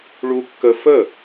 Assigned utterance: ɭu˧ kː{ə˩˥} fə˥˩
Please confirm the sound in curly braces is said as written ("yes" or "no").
no